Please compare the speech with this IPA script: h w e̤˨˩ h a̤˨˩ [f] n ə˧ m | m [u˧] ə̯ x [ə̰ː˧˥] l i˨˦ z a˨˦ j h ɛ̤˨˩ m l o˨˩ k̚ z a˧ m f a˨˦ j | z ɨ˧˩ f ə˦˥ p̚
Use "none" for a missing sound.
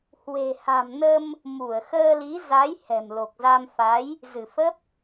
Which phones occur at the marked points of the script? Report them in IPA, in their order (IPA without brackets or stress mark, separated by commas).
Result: m, u˧˩, əː˧